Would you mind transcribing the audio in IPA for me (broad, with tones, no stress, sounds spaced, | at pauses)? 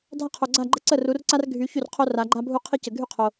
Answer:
dʱ a˥ qʰ o˨ ɡ͡ǀ a˥˨ ɡ͡ǃ ə˥ ǀ ə˥˨ r u˨˦ r ǀ a˥ r ɡʱ y˨˦ ç y˥˨ r qʰ o˥ r a˨˦ ɡ͡ǃ a˥ bʱ u˥ qʰ ɪ˥ c ə˨ ɡʱ y˥˨ qʰ o˨